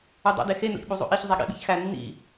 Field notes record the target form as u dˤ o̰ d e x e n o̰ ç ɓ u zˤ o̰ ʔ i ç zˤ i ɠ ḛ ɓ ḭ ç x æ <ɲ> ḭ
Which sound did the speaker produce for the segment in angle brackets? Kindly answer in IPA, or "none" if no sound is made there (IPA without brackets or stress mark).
nː